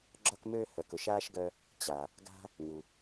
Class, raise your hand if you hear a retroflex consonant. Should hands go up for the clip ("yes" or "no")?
no